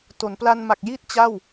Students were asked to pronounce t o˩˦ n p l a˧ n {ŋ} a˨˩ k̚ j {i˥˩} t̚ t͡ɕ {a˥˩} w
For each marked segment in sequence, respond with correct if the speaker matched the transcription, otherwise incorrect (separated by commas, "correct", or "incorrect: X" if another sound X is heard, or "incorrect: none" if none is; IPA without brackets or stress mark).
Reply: incorrect: m, correct, correct